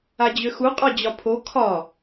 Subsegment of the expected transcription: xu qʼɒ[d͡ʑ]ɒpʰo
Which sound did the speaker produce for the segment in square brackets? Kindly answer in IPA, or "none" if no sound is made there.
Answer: d͡ʑ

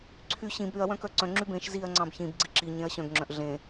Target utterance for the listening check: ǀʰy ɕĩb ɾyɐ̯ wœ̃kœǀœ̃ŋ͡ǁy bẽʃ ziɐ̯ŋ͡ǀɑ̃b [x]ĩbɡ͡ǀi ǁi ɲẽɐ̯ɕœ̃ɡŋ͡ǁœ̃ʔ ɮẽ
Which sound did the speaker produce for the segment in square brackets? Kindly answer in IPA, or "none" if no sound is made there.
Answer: ç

